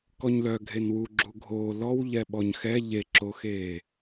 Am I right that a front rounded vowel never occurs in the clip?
no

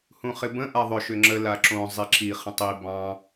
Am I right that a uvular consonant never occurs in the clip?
no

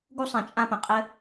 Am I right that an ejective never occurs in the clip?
no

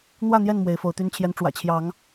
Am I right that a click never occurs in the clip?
yes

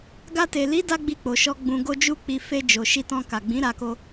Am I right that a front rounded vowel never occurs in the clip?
yes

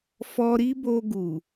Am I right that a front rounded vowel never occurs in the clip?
yes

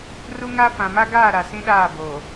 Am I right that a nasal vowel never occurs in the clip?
no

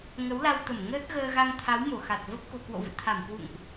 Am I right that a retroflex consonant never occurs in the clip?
yes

